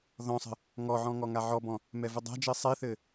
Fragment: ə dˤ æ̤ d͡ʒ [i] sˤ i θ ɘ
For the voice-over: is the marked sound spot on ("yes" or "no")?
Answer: yes